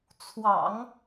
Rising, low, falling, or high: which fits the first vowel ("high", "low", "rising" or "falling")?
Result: low